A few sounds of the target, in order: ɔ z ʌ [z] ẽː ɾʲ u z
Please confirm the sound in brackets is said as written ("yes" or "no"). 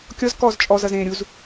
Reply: yes